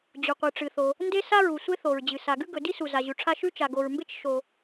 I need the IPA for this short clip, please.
d͡ʑ u˩ qʷ ɨ˩ ʈ͡ʂ ɨ˩ θ o˩ | n d e˥ s a˥ ɹ u˩ sʷ e˥ θ o˩ ɹ d͡ʑ ɨ˩ s a˩ ɡ ʉ˥ ɡ ɵ˩ d i˥ s u˩ z a˩ ʑ ʉ˩ ʈ͡ʂʰ a˥ ʃ ʉ˥ t͡ʃ a˩ ɡ o˩ ɹ m b e˥ t͡ʃ ʃ o˩

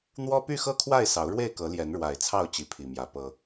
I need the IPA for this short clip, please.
n̪ w ɔ˦ p y˥˨ x ɤ˥˨ kʰ w a˥˨ ɪ̯ s ɑ˨˦ ʊ̯ ɻ w e˥˨ ɪ̯ k ɤ˨˦ l j ɛ˨˦ n ɻ w a˨˩ ɪ̯ t͡sʰ ɑ˥˨ ʊ̯ t͡ɕ i˨˦ pʰ i˨˩ m j ä˨˦ p ɤ˦

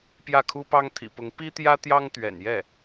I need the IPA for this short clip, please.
p j ä˥˩ kʰ u˥ p ɑ˥ ŋ t̪ʰ ḭ˨˩ p ʊ˧˥ ŋ p i˥ t̪ j ä˥ t̪ j ɑ˥ ŋ t̪ ɥ ɛ̰˨˩ n j ɛ˥˩

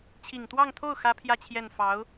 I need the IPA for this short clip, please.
t͡ɕʰ i˨˩ ŋ t̪ w ɑ˥˧ ŋ t̪ʰ o˥˩ ʊ̯ x ä˥ pʰ j ä˥˧ t͡ɕʰ j ɛ˥˩ n f ɑ˧˥ ʊ̯

